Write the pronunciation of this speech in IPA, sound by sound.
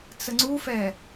t͡s ə ŋ͡ǀ u f ɛ

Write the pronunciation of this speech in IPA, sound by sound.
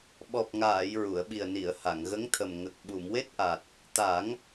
ɓ ɔ˨˩ p̚ ŋ aː˨˩˨ j ɹ u˨˩˨ ə̯ ɓ i˨˩ ə̯ n i˨˩˨ ə̯ h a˨˩˨ ŋ ɣ ə˧˥ ŋ t̪ʰ ə˨˩ m ŋ ə˨˩ k̚ ɓ u˨˩˨ m w e˦˥ t̚ ʔ a˨˩ t̚ | t̪ a˨˩˦ ŋ

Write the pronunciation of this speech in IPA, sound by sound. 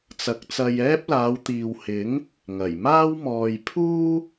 t͡s ɐ˨˥ k̚ t͡s ɐ˧ j ɛː˥ p̚ l aː˨˧ w t̪ iː˨ w h ɪ˨˥ ŋ | ŋ ɐ˨˩ j m aː˥ w m ɔː˧ j pʰ uː˥

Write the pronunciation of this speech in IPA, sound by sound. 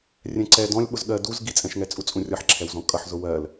rʲ ɛ̃ ǀ ɛ d ɔ̃ lʲ ɓ ʊ z ɠ ɜ d u z ɡ i t͡sʼ ɛ̃ ʃ ŋ ɛ t͡sʼ u t͡sʼ ũ rʲ ʌ ħ ǁʰ ɛ w z ɔ̃ kʼ ʌ ħ z ʊ w ɜ l

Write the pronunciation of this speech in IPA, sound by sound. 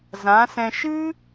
z ã˨˦ s ɛ̃˧ ʃ ɨ˦

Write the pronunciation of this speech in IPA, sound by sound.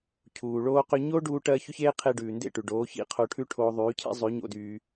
cʰ uː˨ ɭ oː˦ q ʏ˦ ɲ o˦ ɖ uː˧ ʈ ɜ˧ ç ʏ˦ ç eː˦ qʰ e˧ ɖ ʉː˨ n d ḛ˦˨ ʈ ʉ˨ ɖ oː˨˦ ç ḭ˦ qʰ o˧ ʈʰ ʉ˦ ʈʰ oː˦ ðˤ yː˨˦ cʰ ḛ˦ zˤ ʉ˨˦ ɲ o̰˦ d yː˦

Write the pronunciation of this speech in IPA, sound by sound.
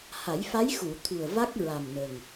h a˨˩˦ j f a˧˥ j x u˨˩˨ t̪ʰ u˨˩ ə̯ v a˦˥ k̚ ɹ a˨˩ m n ə˨˩ ŋ

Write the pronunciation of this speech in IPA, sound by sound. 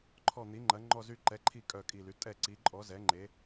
ǃʰ ɔ˦˨ n̪ i˨˥ ŋ͡ǃ ɐ˨˥ ŋ͡ǃ ɔ˦˨ z y˦˨ ǃ ɛ˨˥ ǃʰ i˦˨ kʼ œ˦˨ kʼ i˦˨ l y˨˥ tʼ ɛ˦˨ ǀ i˨˥ ǃʼ ɔ˨˥ z ɛ˨˥ ŋ͡ǃ e˨˥

